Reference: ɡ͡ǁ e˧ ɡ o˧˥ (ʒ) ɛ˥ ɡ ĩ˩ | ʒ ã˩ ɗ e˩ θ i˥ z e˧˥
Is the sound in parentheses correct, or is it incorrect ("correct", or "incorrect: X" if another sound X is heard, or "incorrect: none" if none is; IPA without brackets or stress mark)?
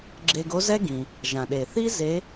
incorrect: z